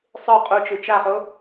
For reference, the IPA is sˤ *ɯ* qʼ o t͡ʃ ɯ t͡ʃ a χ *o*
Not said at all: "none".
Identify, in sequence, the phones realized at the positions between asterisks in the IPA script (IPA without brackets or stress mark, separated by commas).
ɯ, o